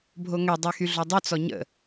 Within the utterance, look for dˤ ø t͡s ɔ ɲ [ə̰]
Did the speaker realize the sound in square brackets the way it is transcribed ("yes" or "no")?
yes